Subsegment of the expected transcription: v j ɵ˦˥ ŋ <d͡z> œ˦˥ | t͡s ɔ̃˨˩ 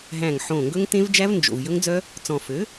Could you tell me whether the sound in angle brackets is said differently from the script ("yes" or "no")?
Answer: no